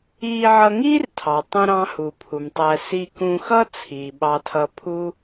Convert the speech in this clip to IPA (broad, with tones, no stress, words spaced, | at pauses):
iː˧ʕʌ˧ŋiː˥rtʰɑ˩ tˤũ˧ɾɑ̃˧ hu˩pʰu˩mtˤæ˧ si˧kũ˧xʌ˥ t͡sʰiː˩ɓɑ˧ tʰʌ˧pʰu˥